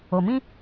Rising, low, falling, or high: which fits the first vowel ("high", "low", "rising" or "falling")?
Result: low